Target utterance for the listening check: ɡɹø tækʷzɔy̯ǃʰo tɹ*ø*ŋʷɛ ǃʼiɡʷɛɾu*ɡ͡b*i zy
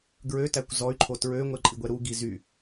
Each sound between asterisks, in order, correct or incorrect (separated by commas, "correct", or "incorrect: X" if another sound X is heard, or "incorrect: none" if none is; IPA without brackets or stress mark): correct, incorrect: ɡ